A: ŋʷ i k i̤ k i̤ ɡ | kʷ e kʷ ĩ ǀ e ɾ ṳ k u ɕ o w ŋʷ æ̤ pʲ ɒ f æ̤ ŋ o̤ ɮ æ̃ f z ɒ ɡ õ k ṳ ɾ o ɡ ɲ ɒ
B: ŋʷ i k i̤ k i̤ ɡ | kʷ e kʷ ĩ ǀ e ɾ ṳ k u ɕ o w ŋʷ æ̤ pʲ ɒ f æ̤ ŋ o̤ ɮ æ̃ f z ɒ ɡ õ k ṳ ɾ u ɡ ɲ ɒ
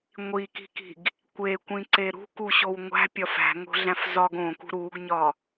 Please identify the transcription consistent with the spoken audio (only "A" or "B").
B